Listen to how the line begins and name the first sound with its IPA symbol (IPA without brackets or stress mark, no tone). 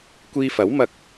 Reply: kʷ